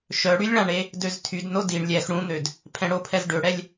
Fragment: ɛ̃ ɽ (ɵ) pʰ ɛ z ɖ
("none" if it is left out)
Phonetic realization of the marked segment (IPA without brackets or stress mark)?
o